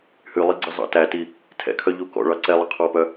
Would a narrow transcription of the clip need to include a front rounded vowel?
yes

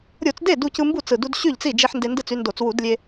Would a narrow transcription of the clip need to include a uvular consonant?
no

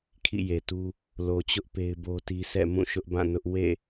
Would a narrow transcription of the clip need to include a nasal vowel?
yes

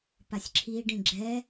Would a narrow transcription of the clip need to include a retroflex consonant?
yes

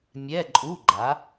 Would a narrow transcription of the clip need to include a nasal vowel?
no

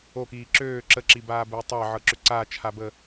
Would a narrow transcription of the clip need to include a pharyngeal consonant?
yes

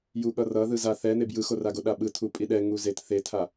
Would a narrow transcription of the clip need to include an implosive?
yes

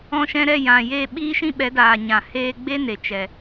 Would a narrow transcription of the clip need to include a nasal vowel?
yes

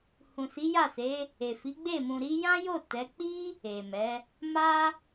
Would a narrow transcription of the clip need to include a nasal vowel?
yes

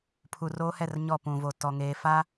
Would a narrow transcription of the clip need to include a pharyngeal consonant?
no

